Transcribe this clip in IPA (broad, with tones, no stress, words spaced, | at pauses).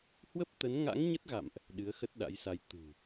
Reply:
hwə˦˥p̚t̪ə˨˦n ŋa̰˧˥ŋɲə˦˥t̚ɣa̰˧˨mʔ | ɗɨ˨˦ə̯xə˦˥t̚ɗa̰˧˥jsa˧j t̪ṳ˨˩